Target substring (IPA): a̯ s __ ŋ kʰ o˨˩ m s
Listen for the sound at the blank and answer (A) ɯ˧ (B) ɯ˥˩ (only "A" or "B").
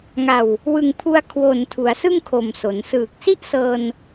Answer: B